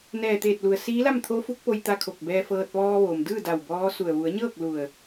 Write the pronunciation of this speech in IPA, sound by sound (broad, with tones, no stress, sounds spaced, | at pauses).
n ɛː˧˩ t̪ eː˧˩ t̚ l u˩ ə̯ s iː˧˥ l a˥˨ m t̪ʰ o˧˥ f u˧˥ k̚ p o˧ j t̪ a˧ kʰ o˧˩ k̚ b ɛː˧ f ɤː˧ t̚ ʋ ɔː˧ ʋ oː˩ m d ɯː˥˨ d a˧˩ w b ɔː˧˥ s u˧˩ ə̯ ʋ u˩˧ ə̯ ɲ ɤː˥˨ k̚ l u˧˩ ə̯